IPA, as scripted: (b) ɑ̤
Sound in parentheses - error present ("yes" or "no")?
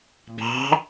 no